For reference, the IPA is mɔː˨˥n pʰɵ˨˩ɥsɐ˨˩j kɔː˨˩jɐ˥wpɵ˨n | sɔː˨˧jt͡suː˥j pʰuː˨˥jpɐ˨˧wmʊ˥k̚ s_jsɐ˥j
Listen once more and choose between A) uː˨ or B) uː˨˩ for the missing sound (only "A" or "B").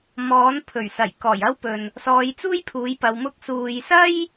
A